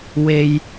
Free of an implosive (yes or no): yes